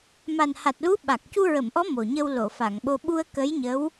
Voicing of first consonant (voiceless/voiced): voiced